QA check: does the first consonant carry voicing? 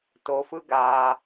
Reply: no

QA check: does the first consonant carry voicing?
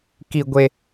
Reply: no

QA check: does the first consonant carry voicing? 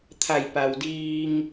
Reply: no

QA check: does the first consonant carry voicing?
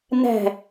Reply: yes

